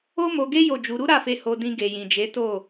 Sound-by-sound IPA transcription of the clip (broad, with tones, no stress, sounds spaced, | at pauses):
o˦ m o˧ ɡ e˦ j o˦˨ d͡ʒ u˨˦ ɾ u˦ ɾ a˦˨ f e˧ h o˧ d ĩ˧ ɡ e˨ j ĩ˨ d͡ʒ e˨˦ t o˦˨